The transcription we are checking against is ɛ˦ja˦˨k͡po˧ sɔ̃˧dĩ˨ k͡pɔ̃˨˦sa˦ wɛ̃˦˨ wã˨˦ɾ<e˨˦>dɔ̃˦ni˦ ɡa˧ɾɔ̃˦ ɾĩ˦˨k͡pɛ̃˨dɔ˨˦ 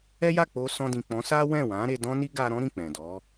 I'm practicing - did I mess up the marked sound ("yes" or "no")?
yes